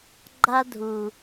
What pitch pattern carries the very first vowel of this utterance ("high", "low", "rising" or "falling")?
high